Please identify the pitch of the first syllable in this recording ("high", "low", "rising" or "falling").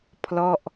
falling